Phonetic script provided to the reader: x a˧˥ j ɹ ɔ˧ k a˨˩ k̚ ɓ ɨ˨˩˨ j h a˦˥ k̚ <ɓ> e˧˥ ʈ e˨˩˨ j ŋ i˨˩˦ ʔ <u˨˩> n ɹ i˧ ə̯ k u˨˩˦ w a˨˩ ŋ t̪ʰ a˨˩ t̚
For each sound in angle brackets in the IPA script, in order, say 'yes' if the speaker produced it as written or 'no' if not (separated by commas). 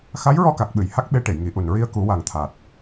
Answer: yes, yes